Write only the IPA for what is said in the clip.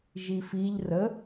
ʒifiʎ rə

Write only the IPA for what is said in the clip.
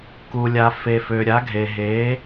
ku˩ lʲa˩fe˩fø˩ɾʲa˩˥ ɡʱe˩ɦe˩˥

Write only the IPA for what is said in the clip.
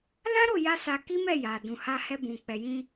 lã˦ɾo˦˨ja˧ sa˧ki˦ mɛ˦˨ja˨dũ˨ ha˧hɛ˧bũ˨ k͡pɛ˨jĩ˧

